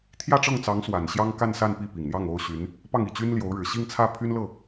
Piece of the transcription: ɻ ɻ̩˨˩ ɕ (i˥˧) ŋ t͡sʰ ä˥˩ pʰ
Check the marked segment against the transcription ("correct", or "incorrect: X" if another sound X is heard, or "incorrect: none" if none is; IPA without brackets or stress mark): correct